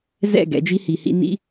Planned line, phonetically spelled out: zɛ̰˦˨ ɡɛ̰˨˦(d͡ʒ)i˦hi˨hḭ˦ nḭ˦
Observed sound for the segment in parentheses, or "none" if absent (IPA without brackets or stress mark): d͡ʒ